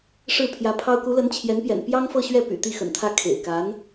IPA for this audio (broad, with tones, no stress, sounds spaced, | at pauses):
ʂ ɻ̩˥˩ pʰ j ä˧˥ pʰ ɑ˥ ʊ̯ k u˧˥ l ə˧˥ n t͡ɕʰ j ɛ˧˥ n p j ɛ̰˨˩ n p j ɑ˥ ŋ f ɤ˥˧ ɕ ɥ ɛ˥˩ p y̰˨˩ t̪ i˥˩ x ə̰˨˩ n t̪ʰ ä˥˩ kʰ ḛ˨˩ ɪ̯ k a˧˥ n